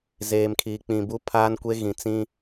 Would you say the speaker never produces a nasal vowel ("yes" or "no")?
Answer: no